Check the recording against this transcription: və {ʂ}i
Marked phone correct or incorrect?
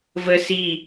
incorrect: s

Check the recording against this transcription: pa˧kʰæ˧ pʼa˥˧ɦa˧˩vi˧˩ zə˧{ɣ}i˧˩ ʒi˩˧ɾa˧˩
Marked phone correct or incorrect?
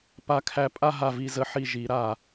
incorrect: ħ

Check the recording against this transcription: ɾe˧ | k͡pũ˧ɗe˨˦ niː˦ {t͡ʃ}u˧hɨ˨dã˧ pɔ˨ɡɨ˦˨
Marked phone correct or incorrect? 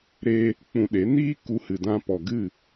incorrect: k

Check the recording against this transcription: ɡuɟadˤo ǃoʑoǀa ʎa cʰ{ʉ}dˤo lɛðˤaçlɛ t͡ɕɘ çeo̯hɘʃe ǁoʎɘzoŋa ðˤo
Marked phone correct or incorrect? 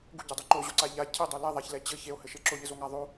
incorrect: ɘ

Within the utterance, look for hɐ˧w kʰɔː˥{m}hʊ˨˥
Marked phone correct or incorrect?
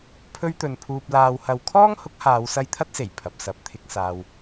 incorrect: ŋ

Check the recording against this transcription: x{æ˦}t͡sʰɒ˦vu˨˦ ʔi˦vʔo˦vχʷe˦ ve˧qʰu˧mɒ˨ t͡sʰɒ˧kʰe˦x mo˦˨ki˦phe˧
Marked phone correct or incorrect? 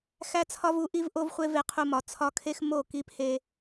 correct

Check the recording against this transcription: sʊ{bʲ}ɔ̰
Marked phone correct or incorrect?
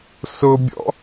correct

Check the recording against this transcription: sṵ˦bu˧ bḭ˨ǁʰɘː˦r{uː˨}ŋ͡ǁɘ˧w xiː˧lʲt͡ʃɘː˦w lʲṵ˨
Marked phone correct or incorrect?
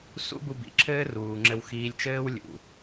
correct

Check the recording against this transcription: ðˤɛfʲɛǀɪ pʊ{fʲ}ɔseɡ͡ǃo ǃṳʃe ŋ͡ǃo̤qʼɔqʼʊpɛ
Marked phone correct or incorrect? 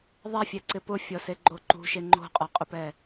correct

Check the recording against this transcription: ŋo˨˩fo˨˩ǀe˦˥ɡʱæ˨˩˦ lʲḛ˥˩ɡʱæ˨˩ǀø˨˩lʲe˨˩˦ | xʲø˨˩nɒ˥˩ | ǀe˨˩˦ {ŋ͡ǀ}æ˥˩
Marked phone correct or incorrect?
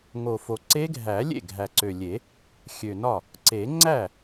correct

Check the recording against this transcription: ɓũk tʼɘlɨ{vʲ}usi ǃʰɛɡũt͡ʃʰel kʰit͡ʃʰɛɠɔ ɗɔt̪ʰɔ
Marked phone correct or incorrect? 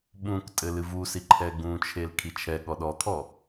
incorrect: v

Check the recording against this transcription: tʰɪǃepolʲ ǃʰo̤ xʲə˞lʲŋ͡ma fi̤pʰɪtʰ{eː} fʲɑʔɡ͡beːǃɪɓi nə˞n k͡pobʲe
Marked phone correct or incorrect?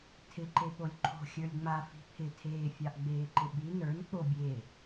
correct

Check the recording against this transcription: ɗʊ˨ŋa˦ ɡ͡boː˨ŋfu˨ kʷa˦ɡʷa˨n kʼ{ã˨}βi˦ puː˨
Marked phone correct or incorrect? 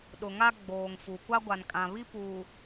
correct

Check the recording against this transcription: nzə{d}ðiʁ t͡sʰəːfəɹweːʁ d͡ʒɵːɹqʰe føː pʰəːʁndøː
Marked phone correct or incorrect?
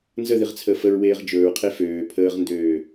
incorrect: none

